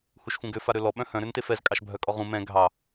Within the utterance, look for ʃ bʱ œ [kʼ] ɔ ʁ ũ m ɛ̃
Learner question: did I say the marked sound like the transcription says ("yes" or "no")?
yes